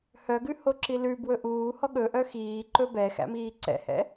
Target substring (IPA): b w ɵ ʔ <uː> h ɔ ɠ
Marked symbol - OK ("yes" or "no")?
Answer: yes